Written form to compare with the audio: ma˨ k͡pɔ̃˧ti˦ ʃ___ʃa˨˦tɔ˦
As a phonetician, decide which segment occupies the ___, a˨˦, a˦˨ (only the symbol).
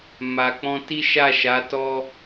a˦˨